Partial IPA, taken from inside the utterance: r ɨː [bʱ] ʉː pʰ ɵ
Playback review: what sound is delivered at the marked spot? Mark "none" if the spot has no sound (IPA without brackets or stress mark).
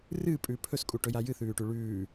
pʼ